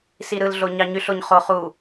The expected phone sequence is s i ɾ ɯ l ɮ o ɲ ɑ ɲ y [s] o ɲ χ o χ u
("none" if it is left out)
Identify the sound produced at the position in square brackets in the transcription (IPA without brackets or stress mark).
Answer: ɬ